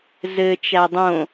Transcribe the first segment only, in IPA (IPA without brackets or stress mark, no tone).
z